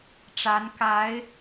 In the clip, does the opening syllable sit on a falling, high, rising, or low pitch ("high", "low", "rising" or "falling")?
rising